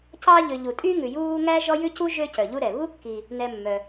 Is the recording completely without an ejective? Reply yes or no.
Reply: no